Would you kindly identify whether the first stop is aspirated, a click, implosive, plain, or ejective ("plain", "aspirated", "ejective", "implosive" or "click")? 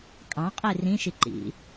ejective